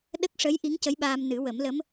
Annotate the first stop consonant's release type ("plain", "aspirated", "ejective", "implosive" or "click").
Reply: implosive